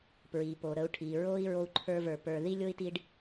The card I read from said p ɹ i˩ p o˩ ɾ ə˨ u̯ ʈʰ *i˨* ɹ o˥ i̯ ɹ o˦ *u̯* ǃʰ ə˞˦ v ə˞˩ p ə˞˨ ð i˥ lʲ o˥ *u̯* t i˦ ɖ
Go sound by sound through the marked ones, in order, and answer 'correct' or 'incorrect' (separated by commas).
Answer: incorrect, correct, incorrect